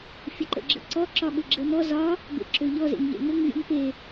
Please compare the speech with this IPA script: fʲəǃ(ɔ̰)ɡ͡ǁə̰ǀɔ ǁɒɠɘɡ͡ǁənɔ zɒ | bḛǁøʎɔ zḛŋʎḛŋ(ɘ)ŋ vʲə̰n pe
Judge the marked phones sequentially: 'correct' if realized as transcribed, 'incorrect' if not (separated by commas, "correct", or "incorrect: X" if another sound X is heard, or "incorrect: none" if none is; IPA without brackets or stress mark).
incorrect: ə̰, correct